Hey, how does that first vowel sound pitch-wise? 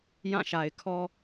falling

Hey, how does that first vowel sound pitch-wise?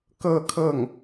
falling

